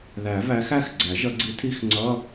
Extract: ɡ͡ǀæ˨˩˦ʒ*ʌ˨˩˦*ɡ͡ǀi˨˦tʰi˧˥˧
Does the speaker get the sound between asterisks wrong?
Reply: no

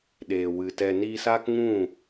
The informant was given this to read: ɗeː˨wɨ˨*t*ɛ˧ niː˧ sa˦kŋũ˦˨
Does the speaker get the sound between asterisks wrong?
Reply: no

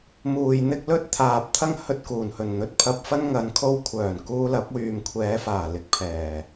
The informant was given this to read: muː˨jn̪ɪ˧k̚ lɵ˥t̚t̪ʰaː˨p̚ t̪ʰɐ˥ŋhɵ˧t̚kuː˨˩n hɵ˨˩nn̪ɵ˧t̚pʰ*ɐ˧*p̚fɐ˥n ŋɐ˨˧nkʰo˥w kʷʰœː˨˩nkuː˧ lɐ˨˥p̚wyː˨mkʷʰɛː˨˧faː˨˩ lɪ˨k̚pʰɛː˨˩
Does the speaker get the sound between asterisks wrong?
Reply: no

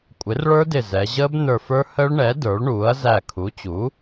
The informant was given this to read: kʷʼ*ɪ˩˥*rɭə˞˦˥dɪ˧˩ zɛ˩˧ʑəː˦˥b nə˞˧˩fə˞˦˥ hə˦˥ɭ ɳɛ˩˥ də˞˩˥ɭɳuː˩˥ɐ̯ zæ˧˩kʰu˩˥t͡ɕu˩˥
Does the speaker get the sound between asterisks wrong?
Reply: no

